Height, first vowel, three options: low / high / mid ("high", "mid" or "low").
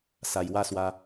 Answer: low